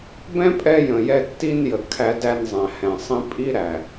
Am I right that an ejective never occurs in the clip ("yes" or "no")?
no